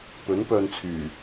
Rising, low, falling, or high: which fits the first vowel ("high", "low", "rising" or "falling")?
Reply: rising